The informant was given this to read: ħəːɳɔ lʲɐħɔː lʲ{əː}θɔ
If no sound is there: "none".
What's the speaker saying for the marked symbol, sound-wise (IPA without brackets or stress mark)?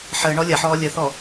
ə